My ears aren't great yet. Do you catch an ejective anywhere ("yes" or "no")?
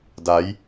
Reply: no